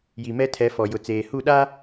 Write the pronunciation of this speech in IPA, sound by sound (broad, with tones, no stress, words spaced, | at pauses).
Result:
ji˨mɛ˦tʰɛ˨˦ fɔ˨ jʊ˨t͡seː˨hu˦˨ ɗa˦